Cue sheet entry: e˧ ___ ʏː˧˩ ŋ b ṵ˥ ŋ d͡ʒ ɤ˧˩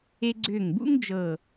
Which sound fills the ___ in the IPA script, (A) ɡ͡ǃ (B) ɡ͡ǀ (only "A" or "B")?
B